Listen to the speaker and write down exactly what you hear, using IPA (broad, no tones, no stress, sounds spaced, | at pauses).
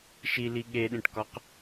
ʃ i l i ɠ e ɗ ẽ ʈ k ɒ q